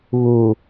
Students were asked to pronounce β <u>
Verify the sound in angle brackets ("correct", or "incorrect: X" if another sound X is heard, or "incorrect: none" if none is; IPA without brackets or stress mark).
correct